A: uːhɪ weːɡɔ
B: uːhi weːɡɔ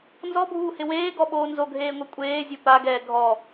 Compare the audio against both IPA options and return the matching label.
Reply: A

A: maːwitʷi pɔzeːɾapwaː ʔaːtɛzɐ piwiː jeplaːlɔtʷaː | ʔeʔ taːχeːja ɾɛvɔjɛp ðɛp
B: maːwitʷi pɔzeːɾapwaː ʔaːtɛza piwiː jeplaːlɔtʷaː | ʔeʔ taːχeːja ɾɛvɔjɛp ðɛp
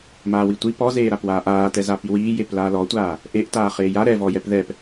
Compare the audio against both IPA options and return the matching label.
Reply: B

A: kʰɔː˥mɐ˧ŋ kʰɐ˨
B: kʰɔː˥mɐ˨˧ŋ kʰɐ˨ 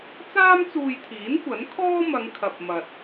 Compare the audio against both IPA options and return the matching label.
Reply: B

